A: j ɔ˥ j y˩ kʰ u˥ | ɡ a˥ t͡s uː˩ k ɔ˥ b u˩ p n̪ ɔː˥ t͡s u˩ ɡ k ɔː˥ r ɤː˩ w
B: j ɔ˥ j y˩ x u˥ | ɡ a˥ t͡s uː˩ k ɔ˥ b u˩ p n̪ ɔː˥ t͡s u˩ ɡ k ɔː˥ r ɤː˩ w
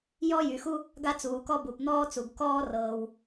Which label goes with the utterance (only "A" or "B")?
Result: B